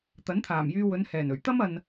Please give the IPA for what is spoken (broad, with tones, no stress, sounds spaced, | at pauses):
t̪ ɐ˨˥ n t̪ʰ aː˨˩ m j yː˧ w ɵ˨˧ n h ɛː˨˩ n ɵ˨˩ ɥ t̪ ɐ˥ m ɐ˧ n